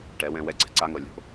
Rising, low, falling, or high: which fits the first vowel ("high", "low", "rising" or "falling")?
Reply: rising